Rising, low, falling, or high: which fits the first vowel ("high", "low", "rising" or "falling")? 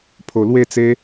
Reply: low